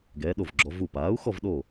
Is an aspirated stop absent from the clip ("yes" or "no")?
yes